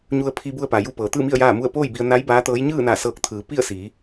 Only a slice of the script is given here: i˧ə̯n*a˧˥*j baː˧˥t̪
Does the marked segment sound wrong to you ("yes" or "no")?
no